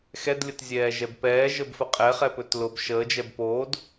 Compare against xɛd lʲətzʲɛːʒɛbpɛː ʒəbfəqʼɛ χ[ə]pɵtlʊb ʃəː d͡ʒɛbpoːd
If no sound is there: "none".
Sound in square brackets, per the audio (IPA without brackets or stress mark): ɛ